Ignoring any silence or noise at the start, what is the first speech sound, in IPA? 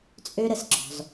t͡sʼ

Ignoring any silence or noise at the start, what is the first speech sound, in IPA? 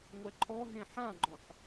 ŋʷ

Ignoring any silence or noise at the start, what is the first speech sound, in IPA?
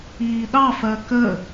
iː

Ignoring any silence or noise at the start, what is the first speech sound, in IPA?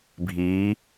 bʱ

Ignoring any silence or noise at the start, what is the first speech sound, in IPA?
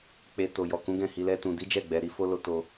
k͡p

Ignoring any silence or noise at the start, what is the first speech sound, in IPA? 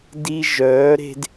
d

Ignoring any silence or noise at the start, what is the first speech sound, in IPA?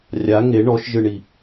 rʲ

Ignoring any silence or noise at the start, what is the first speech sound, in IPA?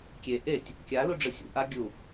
kʲ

